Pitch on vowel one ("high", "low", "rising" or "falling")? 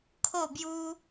falling